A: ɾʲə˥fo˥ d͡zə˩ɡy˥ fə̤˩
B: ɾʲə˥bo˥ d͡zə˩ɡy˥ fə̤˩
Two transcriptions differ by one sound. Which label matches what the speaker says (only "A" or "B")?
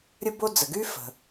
B